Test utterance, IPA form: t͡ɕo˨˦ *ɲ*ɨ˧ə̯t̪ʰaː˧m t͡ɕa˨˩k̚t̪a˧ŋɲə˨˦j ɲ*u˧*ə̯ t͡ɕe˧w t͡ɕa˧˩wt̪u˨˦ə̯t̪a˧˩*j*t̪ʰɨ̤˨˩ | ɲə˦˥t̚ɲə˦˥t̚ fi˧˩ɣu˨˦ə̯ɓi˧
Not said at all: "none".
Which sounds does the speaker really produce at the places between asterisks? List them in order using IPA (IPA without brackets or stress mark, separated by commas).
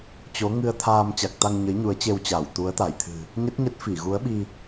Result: ŋ, u˨˦, j